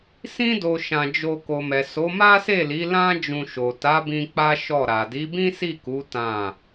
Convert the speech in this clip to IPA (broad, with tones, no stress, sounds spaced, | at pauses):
s ĩ˦ d o˧ ʃ ã˧ d͡ʒ o˧ k o˨ m ɛ˨ s o˨˦ m a˦ s e˦˨ l i˨˦ l ã˦ d͡ʒ ũ˧ ʃ o˨ t a˨˦ b ĩ˧ k͡p a˦ ʃ ɔ˦˨ ɾ a˨ d i˨˦ b ĩ˦ s i˦˨ k u˨˦ t ã˦˨